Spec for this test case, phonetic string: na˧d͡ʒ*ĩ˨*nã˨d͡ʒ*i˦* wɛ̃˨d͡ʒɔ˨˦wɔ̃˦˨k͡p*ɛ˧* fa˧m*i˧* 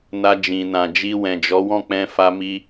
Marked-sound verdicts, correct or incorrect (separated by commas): correct, incorrect, incorrect, correct